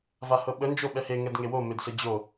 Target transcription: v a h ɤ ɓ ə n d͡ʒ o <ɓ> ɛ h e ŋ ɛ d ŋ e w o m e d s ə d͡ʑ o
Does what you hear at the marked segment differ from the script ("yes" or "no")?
no